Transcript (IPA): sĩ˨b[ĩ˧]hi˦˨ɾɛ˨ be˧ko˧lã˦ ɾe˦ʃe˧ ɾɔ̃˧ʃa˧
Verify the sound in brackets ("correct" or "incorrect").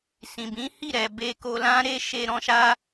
incorrect